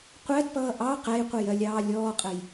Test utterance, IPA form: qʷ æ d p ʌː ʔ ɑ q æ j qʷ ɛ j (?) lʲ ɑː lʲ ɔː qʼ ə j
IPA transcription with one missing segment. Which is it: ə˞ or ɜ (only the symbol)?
ɜ